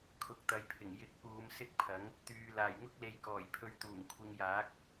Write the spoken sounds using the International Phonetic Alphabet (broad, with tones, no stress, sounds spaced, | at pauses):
kʰ ʊ˨˥ k̚ t̪ ɐ˨˧ j pʰ ɪ˨˩ ŋ j ɪ˧ k̚ p uː˨˧ m s ɪ˥ k̚ pʰ ɐ˨˥ ŋ | t̪ yː˨ l aː˨˩ j ŋ ʊ˥ k̚ l e˨ j k ɔː˨˩ j pʰ ɵ˧ ɥ t̪ uː˨˩ ŋ kʷʰ ɪ˧ ŋ j aː˨˥ k̚